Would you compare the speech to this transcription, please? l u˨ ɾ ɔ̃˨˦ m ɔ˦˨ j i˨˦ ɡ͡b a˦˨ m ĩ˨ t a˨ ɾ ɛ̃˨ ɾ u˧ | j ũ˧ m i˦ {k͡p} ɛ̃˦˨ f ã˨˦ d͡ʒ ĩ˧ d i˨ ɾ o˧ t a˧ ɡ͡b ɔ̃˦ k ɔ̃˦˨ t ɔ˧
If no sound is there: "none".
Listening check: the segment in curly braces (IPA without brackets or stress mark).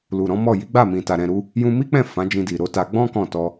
k͡p